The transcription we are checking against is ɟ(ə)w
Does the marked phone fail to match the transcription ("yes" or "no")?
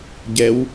yes